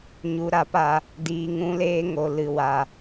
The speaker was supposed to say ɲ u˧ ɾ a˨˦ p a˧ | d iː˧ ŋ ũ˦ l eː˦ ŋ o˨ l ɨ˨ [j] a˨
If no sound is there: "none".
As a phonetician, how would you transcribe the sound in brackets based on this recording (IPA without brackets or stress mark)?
w